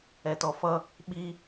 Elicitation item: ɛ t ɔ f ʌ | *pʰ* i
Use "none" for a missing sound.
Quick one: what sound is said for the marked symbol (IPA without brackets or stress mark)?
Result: ɓ